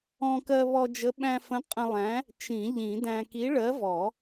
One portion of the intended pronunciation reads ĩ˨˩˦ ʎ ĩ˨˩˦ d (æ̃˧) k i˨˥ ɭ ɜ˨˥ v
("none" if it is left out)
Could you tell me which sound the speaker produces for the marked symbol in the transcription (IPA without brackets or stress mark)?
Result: æ̃˧